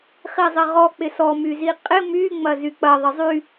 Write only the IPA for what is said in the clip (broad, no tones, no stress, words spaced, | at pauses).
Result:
χizˤɪʁɔ k͡pɪsɔ myziqʼɪ my ŋ͡mɐzyk͡pɐ ðˤɪzˤy